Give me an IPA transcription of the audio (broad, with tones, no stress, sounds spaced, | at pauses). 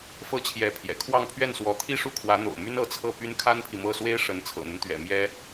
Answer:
f ɤ˥ t͡ɕʰ j ɛ˧˥ pʰ j ɛ̰˨˩ kʰ w ɑ˥˧ ŋ pʰ ɥ ɛ˥˩ n s w ɔ˧˥ t̪ʰ i˥˧ ʂ u˥˩ kʰ w ä˧˥ n̪ o̰˨˩ ʊ̯ m y˥ n ɤ˧˥ t͡sʰ ɤ˥˩ p y˥ n kʰ a˥ n pʰ i˨ m ɤ˥˩ s w e˥ ɪ̯ ʂ ə˧˥ n t͡sʰ ɤ̰˨˩ n̪ ə˦ n t̪ ɥ ɛ̰˨˩ m j ɛ˥